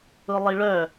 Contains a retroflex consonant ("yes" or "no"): yes